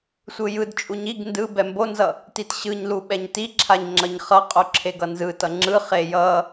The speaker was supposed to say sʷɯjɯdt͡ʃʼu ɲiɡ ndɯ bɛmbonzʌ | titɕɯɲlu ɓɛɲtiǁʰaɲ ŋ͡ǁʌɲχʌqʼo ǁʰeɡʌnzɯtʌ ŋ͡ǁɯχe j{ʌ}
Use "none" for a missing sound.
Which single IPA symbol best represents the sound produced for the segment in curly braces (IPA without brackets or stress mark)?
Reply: ʌ